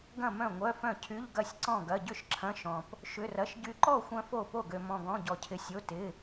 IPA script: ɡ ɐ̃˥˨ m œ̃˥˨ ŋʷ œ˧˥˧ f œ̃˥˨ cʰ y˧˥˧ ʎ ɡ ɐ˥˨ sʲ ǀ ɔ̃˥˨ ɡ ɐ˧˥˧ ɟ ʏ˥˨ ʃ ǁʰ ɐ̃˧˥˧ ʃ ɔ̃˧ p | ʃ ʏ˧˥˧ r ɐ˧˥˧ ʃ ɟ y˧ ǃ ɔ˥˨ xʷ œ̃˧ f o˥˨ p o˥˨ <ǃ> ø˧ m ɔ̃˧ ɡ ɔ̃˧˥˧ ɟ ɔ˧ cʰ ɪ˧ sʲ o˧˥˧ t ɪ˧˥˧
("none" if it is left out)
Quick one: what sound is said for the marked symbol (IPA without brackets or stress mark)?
ɡ